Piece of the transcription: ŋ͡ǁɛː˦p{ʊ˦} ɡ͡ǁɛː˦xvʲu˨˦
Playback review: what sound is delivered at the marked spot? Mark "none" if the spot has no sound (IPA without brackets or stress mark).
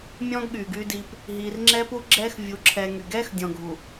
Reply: u˦